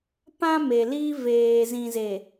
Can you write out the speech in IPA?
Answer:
p ã˦ m e˨ l iː˦ v eː˨ z ĩ˨ z e˨

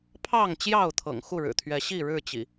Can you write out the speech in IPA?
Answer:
pʰ ɑ˥˨ ŋ t͡ɕ j ɑ˥˨ ʊ̯ t̪ʰ ɤ̰˨˩ ŋ x u˥˨ ɻ ɻ̩˨˩ t̪ʰ ɥ ɛ˨˦ ɕ i˥˨ ɻ ɻ̩˥˨ t͡ɕ ḭ˨˩

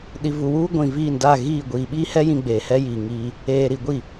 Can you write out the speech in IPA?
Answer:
ɗ i˨ v u˨ w uː˦ ɡʷ ĩ˨ v iː˦˨ n d a˦˨ ɣ iː˦˨ ɡʷ iː˨ ɓ iː˦ h ɛ˦ j ĩ˦ ɡ͡b eː˨ h ɛ˦ j iː˨ ŋ iː˦ | eː˨ ɾ i˨ ɡʷ i˦˨

